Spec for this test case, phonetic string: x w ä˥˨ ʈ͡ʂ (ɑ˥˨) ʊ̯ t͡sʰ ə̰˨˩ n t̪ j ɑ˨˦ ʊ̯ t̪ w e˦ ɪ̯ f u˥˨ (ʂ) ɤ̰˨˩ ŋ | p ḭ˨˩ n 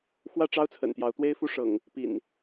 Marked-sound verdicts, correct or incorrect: incorrect: ɑ˦, correct

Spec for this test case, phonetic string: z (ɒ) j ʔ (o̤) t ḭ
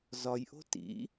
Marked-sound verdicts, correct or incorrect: correct, correct

